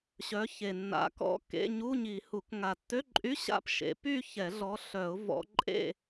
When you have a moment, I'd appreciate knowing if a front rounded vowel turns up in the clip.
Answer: yes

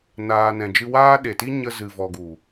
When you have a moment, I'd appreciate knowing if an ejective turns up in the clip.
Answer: no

